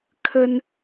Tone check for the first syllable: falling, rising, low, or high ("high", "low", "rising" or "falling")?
high